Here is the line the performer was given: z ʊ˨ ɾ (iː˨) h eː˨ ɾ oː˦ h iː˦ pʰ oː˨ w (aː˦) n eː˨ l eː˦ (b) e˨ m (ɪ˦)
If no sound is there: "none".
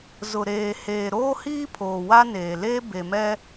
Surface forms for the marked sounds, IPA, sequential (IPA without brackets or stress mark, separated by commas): eː˨, a˦, b, ɛ˦